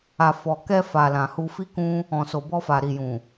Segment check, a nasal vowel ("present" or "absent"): present